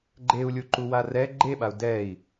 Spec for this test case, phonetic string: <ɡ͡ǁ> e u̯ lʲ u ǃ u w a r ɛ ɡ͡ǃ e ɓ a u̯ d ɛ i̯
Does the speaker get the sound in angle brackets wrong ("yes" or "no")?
yes